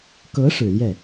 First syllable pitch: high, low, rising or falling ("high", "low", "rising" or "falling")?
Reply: rising